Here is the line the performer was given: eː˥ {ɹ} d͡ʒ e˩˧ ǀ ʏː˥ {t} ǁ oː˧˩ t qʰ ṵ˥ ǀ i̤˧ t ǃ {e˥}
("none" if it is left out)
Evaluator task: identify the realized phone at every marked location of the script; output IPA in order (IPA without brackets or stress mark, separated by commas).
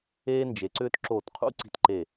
n, t, e˧˩